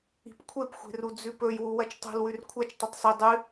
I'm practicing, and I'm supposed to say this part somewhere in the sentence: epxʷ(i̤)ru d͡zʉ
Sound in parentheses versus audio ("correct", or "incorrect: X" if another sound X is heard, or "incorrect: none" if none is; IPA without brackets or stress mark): incorrect: e̤